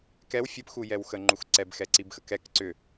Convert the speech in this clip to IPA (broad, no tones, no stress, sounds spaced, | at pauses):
k ɛ w fʲ ə p x u j ɛ w x ə ŋ͡ǃ u x ǀ ɛ b x ɛ ǀ i b x ə k ɛ k ǀ ʏ